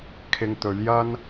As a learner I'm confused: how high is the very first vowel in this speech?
high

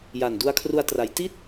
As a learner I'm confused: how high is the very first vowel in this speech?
low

